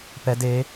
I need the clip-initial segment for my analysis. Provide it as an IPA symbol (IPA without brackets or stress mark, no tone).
p